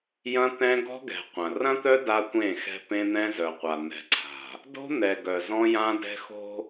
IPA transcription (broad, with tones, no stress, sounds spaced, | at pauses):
j ɐ̃˦ t̪ ɛ̃˦ ɡ ɔ̤˦ ɡ ɛ̤˨ qʷ ɐ̃˨ r ɐ̃˦ t̪ œ˦ d a˦ tʷ ẽ˦˨ x ɛ̤˦ p ẽ˦ n̪ ɛ̃˦ z œ˨ qʷ a˨ n̪ ɛ̤˨ ǀʰ a̤˨ | d o̤˦ n̪ ɛ˨ ɡ œ˨ z ɔ̃˦ j ã˦ d ɛ̤˦ x o̤˦